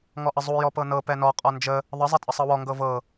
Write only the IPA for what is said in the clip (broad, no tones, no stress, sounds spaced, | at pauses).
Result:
ŋ ɔ ʔ ə zˤ u j ɔ p ɤ n ɤ p ɛ n ɔ qʼ ɔ n d͡ʒ ə | ðˤ ə zˤ ɛ tʼ ə sˤ ɤ w ɔ ŋ ɡ ɤ v ɤ